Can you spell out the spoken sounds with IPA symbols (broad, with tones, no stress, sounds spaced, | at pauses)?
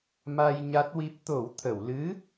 m a˧ j ɲ a˦˥ t̚ w i˦˥ p̚ t̪ o˨˩˦ w t̪ʰ ə˨˩˨ w l ɨ˧˥